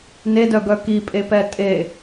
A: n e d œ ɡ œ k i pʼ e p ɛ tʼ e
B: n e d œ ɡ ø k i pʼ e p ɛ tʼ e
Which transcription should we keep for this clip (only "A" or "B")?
A